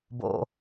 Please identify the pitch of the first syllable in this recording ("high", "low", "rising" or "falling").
low